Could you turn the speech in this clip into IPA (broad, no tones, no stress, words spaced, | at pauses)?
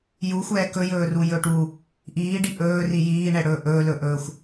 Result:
juxʷɛː kɵjɵːrujɵːʈ u | ʔiːɖi ʔɵːri jiːɳɛɽɵː ʔɵːlɵʔɵːxʷ